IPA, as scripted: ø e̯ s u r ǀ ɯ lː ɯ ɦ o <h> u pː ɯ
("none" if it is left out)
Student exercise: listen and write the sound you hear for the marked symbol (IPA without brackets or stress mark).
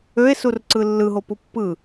p